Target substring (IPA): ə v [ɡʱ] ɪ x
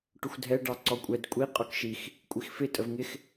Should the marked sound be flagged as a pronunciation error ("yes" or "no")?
yes